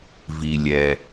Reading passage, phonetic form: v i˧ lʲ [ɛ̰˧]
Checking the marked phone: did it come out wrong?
yes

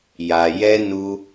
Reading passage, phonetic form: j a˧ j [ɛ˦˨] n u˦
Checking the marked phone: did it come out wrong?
yes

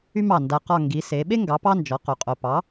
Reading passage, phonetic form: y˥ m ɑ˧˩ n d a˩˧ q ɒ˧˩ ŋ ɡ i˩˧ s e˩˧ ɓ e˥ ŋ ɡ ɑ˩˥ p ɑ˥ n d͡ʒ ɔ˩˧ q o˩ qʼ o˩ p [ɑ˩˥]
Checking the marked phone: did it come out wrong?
no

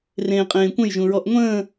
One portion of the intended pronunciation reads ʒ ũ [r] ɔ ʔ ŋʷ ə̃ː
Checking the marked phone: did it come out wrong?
yes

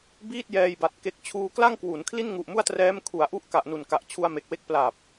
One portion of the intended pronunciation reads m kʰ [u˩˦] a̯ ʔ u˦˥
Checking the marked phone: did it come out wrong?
no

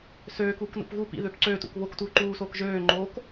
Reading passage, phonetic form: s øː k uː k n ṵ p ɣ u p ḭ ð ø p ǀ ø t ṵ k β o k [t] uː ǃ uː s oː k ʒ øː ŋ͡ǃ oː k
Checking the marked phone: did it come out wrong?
no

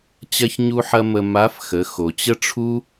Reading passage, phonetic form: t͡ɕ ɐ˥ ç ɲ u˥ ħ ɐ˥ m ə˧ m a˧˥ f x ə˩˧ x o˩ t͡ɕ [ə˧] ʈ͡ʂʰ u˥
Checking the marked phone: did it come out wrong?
yes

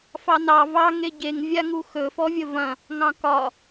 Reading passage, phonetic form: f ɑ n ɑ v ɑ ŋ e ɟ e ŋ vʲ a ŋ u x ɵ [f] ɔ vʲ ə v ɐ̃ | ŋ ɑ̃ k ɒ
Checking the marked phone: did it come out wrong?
no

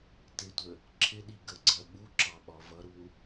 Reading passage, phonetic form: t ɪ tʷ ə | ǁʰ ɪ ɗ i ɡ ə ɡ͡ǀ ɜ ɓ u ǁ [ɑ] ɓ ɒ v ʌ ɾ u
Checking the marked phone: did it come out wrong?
no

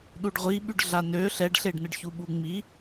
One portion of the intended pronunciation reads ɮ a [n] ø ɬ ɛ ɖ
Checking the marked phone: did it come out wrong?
no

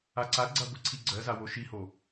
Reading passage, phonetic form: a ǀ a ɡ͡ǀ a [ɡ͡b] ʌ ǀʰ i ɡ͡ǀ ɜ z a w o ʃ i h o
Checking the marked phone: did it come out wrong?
yes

